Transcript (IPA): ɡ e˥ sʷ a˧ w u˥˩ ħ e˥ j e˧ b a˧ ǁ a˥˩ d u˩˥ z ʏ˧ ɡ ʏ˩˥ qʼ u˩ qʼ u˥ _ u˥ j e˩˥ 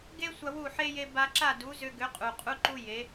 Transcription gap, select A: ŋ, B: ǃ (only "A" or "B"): B